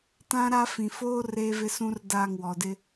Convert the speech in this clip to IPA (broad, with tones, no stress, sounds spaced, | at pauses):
t ã˦ ɾ a˦ f ĩ˨ f oː˦ r eː˦ v ɪ˦ s ũ˦ r d aː˦˨ ŋ w ɔ˨ d ɪ˦